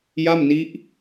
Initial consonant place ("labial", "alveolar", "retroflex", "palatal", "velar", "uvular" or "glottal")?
palatal